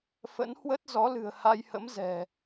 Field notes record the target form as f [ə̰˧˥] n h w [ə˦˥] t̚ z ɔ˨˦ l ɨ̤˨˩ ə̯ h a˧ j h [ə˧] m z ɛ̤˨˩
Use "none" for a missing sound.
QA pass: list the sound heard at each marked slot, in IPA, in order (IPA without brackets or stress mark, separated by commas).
ə̰˧˥, ə˦˥, ə̰˧˥